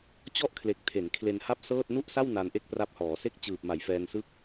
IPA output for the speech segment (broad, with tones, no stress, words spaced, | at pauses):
t͡ɕɔ˥˩ʔkʰle˨˩k̚ tʰe˩˦nkʰle˧nha˥˩p̚ sɤː˥˩t̚ nu˥˩ʔsa˥˩w na˧nʔe˥˩k̚pra˦˥p̚hɔː˩˦ se˥˩k̚t͡ɕɯː˨˩p̚ ma˩˦jfɛː˧nsɯ˥˩k̚